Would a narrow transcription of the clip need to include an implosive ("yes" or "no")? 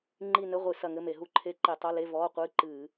no